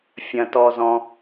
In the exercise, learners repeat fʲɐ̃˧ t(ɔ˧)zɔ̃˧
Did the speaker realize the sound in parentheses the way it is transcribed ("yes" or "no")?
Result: yes